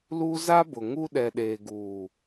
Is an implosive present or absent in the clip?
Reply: present